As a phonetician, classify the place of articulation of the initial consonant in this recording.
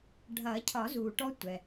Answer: retroflex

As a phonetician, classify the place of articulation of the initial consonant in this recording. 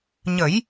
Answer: palatal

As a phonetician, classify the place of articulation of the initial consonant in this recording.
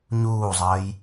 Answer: palatal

